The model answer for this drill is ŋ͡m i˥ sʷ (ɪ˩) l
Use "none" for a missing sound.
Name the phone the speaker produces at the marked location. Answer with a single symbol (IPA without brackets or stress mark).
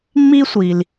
i˩